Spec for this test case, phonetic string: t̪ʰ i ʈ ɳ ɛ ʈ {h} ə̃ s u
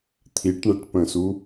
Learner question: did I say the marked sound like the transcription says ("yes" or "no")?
no